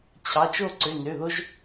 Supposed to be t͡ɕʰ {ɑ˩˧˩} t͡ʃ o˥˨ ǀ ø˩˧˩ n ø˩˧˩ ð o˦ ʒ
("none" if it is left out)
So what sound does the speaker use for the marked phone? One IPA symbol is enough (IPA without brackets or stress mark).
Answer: ɑ˩˧˩